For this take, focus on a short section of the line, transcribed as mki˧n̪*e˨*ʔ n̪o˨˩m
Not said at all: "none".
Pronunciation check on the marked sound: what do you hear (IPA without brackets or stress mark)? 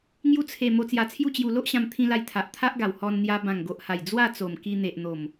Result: e˨